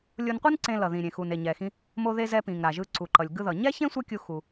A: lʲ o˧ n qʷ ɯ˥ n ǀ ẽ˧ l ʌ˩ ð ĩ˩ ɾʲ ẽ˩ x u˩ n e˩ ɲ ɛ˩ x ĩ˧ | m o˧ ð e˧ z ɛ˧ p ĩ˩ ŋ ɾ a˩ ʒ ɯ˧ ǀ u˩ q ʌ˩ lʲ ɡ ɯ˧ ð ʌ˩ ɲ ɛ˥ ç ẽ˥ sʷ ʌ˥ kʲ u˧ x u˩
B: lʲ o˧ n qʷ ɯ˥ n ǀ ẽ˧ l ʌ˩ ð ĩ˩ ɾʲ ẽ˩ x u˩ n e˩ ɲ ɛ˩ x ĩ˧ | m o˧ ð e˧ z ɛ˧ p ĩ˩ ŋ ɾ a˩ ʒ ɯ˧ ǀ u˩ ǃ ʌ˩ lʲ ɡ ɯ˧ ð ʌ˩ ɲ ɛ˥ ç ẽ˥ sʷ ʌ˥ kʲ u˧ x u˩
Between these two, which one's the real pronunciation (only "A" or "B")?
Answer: B